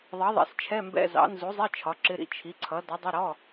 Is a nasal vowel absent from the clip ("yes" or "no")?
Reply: yes